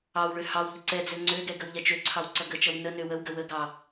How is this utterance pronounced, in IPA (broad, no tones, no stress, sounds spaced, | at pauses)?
ɑ w ɭ ø h ɑ w ʎ ə ǀ ɛ d͡z ø ŋ͡ǀ ø ɡ ɛ ɡ ə w ʎ ɛ t͡ʃ ø ǀʰ ɑ w ǀ ʌ ɡ ə t͡ʃ ʌ w n ə n ø w ə w ɡ ə w ə ɡ ɑ